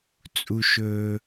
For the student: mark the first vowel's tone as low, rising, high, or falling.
high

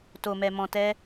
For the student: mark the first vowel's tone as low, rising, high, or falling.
low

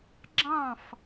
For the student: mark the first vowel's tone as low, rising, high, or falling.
falling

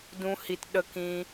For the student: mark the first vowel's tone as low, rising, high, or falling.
high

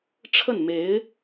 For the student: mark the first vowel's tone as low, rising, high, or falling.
falling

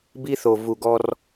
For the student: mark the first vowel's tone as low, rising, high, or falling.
high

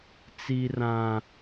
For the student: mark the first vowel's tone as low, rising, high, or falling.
high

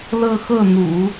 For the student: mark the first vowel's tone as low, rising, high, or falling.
falling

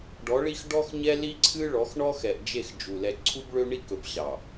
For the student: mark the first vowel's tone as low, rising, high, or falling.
rising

